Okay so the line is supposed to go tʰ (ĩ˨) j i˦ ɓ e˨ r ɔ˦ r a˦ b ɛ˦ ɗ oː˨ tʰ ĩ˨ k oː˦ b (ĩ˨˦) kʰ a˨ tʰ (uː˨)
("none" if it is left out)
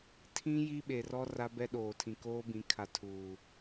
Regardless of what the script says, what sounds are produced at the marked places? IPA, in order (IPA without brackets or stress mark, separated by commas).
ĩ˦, ĩ˨˦, uː˨